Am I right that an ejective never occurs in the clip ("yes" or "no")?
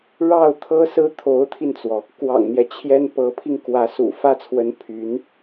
yes